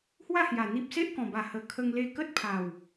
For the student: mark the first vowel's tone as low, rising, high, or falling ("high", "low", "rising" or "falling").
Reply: falling